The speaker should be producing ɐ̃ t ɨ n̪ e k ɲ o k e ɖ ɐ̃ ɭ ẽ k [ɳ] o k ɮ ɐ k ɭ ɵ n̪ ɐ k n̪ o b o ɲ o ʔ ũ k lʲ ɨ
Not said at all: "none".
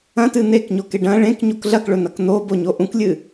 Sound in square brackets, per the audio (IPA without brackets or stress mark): ɲ